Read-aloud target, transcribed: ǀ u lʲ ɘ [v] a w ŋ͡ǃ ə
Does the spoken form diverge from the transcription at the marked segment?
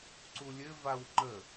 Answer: no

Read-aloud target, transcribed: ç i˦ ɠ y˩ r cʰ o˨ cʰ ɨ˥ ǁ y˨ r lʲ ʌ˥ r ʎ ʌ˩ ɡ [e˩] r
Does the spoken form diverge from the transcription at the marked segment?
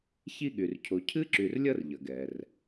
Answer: yes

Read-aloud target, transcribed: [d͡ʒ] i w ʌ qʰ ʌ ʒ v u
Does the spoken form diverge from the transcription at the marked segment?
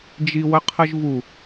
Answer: no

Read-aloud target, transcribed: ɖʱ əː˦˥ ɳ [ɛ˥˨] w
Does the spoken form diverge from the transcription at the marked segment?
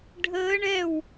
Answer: no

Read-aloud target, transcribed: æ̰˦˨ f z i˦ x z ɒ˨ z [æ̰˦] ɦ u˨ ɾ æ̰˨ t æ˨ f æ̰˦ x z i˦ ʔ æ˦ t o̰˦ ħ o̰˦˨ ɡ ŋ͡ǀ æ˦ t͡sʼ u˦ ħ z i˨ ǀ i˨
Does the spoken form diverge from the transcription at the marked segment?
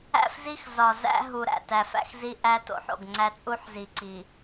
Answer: no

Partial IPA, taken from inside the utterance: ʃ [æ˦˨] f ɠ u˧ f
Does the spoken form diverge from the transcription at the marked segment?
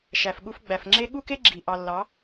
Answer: yes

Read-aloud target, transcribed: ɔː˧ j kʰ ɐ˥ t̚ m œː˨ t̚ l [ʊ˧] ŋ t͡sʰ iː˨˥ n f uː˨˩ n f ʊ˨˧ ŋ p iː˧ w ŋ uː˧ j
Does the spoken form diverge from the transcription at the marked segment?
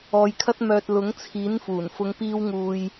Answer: yes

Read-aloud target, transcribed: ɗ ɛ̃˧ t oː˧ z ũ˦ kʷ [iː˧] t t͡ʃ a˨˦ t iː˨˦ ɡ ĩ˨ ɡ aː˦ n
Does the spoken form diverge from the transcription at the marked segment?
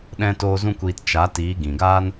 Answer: no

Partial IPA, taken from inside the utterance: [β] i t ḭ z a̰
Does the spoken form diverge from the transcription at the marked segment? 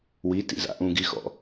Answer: yes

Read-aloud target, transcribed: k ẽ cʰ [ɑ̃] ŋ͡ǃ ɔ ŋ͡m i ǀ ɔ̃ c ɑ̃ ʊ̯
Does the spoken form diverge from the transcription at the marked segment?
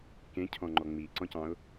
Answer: yes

